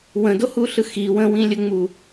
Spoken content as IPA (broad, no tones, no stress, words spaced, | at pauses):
wə̃dohuɬɯ xi wə̃wĩlʲəŋ͡mu